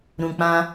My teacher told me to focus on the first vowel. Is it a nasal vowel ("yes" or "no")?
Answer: yes